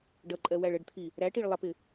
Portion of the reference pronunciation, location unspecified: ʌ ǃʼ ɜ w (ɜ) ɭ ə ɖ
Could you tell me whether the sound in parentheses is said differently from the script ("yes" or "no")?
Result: yes